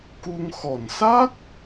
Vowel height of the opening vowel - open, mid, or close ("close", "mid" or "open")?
close